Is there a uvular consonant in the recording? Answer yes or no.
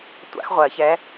yes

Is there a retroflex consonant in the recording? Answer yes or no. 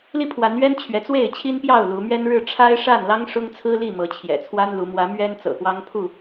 yes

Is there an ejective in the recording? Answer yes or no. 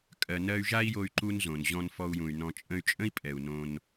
yes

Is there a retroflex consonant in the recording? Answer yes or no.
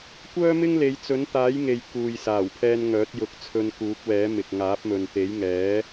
no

